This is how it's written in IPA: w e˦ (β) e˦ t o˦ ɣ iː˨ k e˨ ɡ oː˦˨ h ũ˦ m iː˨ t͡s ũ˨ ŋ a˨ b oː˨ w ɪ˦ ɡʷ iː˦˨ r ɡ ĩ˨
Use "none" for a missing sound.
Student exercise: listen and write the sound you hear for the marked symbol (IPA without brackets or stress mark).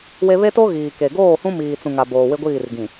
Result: β